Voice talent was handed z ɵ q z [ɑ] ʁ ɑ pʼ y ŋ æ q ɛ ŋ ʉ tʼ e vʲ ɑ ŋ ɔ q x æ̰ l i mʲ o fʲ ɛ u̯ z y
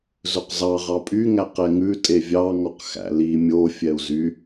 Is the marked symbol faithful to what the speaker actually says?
yes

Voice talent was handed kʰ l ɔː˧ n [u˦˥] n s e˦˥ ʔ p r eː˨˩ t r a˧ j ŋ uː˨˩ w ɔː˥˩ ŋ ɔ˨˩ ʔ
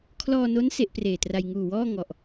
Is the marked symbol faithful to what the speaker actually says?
no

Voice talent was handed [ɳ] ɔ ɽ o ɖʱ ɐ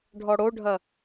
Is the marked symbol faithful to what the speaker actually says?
no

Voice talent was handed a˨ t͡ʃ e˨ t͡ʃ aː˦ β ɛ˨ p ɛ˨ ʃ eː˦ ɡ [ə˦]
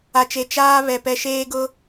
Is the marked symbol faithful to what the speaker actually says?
no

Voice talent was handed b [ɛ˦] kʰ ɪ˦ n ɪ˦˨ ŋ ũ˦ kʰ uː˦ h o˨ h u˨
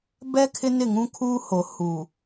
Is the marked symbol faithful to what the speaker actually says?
yes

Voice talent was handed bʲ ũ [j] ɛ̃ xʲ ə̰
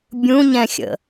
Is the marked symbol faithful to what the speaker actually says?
no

